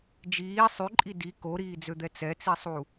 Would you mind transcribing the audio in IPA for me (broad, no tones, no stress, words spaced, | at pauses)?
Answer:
d͡ʒiː sˤyǃʼi di koɾiːd͡zød̪ɛ t͡sɛt͡sisˤu